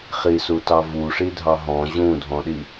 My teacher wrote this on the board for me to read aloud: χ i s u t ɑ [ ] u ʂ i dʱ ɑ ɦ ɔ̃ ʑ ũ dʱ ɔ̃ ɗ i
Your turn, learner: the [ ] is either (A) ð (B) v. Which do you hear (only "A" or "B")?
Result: B